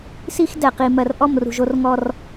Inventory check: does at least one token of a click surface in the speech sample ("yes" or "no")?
no